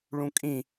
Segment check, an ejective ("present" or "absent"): present